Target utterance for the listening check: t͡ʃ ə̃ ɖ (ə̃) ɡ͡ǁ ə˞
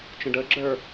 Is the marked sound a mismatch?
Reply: yes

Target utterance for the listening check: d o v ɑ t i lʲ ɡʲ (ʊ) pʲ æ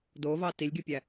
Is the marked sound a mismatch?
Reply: yes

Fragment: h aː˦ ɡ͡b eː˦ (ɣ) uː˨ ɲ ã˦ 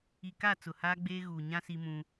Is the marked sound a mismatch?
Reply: no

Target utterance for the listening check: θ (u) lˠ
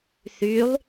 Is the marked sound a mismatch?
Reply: yes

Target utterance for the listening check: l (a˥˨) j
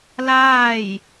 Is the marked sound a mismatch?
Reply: yes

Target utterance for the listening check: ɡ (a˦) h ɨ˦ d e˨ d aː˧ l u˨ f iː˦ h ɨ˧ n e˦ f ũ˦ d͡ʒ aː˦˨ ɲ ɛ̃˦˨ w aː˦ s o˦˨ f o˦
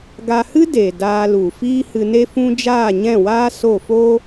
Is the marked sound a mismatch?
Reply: yes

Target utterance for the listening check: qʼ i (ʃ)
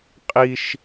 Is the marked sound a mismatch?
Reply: no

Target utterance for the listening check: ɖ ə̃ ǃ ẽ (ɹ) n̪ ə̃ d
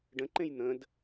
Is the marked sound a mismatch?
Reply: yes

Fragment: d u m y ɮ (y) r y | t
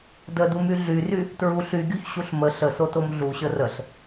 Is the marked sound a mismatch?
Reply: no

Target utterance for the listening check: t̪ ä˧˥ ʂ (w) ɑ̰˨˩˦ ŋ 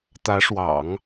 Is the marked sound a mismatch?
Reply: no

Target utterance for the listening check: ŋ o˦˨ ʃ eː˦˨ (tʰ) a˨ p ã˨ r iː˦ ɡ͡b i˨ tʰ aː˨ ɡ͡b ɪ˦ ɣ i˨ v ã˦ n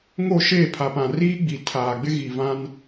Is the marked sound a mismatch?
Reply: yes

